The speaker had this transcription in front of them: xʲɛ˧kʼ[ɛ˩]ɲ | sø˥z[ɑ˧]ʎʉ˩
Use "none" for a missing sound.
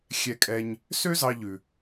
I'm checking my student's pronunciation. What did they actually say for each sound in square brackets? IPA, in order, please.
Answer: ɛ˧, ɑ˧

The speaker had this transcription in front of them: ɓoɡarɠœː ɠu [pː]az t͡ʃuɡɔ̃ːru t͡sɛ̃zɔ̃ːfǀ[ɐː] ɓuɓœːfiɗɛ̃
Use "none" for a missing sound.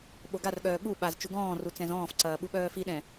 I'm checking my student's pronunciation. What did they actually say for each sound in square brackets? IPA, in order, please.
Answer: ɓ, ɐː

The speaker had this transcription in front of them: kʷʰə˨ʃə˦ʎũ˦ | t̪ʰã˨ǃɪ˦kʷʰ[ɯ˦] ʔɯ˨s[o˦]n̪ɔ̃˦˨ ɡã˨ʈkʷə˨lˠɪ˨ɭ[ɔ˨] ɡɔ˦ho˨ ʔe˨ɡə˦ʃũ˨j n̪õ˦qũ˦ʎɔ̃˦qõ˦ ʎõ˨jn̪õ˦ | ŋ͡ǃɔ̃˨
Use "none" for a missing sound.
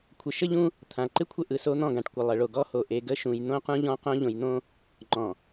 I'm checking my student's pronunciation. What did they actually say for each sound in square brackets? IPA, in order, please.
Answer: ə˦, o˦, o˨

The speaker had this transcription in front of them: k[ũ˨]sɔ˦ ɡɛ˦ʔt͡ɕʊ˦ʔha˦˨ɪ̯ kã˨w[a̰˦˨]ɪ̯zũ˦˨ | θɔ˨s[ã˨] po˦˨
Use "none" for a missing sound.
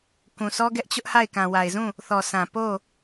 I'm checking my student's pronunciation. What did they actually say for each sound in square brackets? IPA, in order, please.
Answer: ũ˨, a˨, ã˨

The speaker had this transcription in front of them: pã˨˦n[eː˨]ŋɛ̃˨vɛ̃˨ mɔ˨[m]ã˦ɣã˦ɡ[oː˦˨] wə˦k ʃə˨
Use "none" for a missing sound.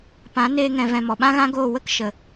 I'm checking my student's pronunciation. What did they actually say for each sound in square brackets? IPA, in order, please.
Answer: eː˧, ɓ, oː˦˨

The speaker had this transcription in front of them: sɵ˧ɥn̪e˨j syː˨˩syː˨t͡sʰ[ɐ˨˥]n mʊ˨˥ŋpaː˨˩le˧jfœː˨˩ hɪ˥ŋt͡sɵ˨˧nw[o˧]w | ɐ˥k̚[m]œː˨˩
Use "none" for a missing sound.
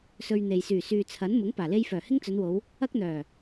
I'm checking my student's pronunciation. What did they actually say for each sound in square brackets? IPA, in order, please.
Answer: ɐ˨˥, o˨˧, n̪

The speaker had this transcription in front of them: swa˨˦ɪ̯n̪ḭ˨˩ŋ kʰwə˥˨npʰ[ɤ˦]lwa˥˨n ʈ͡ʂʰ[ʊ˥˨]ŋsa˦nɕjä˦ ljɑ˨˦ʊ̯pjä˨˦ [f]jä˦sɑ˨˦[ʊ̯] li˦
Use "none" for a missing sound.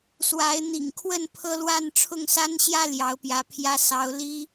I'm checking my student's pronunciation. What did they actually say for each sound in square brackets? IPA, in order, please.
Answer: ɤ˦, ʊ˥˨, pʰ, ʊ̯

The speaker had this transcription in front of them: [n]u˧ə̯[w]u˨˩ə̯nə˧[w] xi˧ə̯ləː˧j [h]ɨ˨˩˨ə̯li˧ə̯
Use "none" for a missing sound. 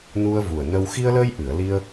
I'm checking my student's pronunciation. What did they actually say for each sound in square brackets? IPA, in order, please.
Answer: n, v, w, ʔ

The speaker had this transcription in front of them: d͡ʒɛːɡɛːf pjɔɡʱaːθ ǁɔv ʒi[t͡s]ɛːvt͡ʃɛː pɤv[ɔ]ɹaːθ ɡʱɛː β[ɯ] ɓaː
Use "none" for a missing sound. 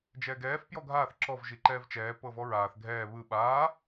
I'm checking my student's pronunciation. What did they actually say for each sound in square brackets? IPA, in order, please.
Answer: ǃ, ɔ, ɯ

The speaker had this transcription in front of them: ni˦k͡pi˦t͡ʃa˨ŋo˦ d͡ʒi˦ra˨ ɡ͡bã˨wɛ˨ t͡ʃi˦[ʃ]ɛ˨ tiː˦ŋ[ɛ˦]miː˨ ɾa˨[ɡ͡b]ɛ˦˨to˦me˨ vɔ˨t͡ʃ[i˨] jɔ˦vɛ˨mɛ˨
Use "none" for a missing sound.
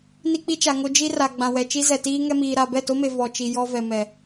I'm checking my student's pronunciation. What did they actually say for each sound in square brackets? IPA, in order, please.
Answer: z, ɛ˦, b, i˨

